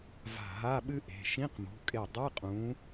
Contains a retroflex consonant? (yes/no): no